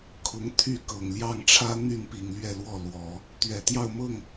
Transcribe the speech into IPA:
kʰ ʊ˧˥ ŋ t̪ʰ y˥˩ k ɤ˨˩ ŋ l j ɑ˥˩ ŋ ʈ͡ʂʰ ä˥ n̪ y˥˩ n p i˨˩ ŋ l ɥ ɛ˥˧ l w ɔ˥˩ l w ɔ˨˩˦ | t̪ ɥ ɛ˨˩ t̪ j ɑ˥˧ ʊ̯ m ɤ˥˩ ŋ

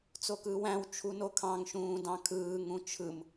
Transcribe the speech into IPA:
t͡s o k ɯː w æ̃ w t͡ʃʰ u n o kʰ ɑ̃ ŋ ʃ ũː d ɑ̃ kʰ ɯː ŋ ũ t͡ʃʰ ɯ m

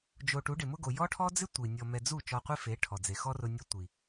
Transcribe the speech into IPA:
d͡ʒ o˧ ʈ u˨˦ ɖ ɪ˨ m ʊ˦ ɡ o˨ j ɔ˦ ʈʰ ɔ˦ d͡z ɪ˦ tʷ i˨ nʲ ɔ˧ m ɛ˧ d͡z u˦˨ t͡ʃ ɔ˧ qʷ i˦ f e˨˦ ʈʰ ɔ˨ d͡z e˨ x ɔ˦ r ʊ˧ nʲ ɔ˧ tʷ i˨

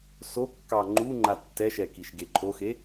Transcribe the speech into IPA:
s o kː ɑ ŋ͡ǃ u ŋ͡ǃ a tː ɛ ʃ ɛ k i ʃ ɡ e ǃʰ o x e

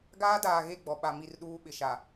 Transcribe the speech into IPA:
ɡ aː˦ d aː˨ ɣ e˦˨ ɡ͡b ɔ˨ ɓ a˨ m i˦˨ r ɗ uː˦ ɓ ɪ˨ ʃ a˨

